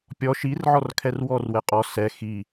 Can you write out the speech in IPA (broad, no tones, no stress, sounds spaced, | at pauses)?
pʲ ɔ ʃ i r ʕ ɔ r kʰ ɛ r w ɔ r w ɛ qʼ ɔ s ɛ x i